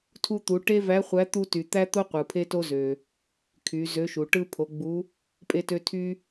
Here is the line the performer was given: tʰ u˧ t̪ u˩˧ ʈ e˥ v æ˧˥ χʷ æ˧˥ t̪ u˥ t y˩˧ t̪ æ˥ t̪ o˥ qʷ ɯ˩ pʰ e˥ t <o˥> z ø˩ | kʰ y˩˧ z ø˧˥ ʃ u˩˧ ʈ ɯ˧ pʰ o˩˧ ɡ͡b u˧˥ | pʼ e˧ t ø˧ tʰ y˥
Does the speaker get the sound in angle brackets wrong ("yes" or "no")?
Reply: no